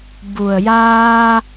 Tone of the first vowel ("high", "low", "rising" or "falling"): low